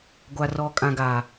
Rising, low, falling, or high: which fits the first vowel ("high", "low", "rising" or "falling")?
low